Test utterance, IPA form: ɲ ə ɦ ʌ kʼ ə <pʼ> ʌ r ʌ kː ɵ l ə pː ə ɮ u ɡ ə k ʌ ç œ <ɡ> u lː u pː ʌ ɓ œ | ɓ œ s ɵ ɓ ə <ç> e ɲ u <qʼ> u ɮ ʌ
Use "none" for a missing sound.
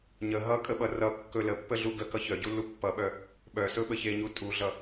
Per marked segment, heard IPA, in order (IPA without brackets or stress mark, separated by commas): ɓ, ɟ, ç, tʼ